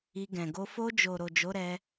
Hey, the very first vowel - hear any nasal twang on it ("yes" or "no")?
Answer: no